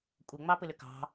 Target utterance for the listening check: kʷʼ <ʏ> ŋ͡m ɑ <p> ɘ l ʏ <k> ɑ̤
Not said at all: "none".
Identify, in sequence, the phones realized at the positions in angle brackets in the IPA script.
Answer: ɛ, p, k

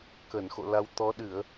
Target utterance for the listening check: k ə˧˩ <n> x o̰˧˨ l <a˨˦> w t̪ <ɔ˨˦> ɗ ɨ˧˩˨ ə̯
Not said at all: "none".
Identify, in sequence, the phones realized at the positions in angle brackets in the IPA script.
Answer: n, a˨˦, ɔ˨˦

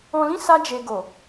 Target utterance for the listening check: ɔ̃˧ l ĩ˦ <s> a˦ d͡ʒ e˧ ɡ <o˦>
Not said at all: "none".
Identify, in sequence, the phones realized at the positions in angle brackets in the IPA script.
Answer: s, o˨

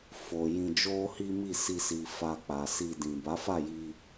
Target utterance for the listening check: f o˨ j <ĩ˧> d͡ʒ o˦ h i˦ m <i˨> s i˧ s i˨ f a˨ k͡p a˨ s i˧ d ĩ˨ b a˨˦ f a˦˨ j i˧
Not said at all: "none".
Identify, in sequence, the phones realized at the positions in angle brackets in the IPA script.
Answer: ĩ˧, i˦˨

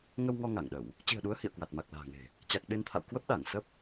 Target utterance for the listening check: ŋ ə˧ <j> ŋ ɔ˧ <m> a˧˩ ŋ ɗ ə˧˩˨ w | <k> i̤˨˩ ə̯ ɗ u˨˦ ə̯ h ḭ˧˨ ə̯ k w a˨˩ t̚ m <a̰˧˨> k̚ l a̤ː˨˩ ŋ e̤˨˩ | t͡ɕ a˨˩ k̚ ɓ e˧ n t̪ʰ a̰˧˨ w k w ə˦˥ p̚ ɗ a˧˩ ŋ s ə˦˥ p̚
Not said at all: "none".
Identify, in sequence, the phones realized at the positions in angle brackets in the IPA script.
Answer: w, ŋ, t͡ɕ, a˨˩

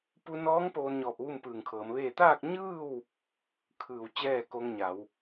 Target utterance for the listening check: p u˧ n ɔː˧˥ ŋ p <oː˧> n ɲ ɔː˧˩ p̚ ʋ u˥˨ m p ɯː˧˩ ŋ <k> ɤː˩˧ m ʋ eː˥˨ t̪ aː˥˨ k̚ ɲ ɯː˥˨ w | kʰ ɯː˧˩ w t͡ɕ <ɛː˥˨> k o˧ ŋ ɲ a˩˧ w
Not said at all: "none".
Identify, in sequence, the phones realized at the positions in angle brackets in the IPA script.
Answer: oː˧, kʰ, ɛː˥˨

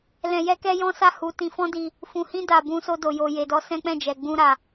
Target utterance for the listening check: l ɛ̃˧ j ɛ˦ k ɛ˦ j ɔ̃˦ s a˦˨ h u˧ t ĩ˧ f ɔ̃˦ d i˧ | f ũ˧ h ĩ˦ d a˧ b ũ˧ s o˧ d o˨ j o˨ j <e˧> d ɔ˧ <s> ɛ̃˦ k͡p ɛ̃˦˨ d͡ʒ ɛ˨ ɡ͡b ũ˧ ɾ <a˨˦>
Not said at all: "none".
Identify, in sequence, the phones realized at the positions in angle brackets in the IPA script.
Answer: e˨, s, a˨

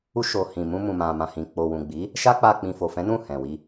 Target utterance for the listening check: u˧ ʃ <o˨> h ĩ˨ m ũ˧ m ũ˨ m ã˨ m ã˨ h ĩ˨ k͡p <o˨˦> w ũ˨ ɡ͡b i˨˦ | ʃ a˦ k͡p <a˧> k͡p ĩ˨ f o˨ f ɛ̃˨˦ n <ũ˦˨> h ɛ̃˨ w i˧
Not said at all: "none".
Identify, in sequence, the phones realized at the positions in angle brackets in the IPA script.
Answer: o˨, o˨, a˧, ũ˦˨

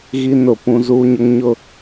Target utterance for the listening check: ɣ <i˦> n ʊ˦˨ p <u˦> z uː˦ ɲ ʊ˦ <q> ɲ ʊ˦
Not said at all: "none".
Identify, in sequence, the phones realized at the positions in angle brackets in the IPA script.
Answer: i˦, ũ˦, ŋ

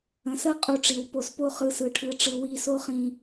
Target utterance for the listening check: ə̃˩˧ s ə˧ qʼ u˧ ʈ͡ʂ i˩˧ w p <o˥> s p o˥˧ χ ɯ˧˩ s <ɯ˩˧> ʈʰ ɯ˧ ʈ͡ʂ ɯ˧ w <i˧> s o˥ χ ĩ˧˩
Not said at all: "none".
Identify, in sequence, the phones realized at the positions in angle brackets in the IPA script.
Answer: o˧˩, ɯ˩˧, i˧

